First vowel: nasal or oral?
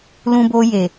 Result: nasal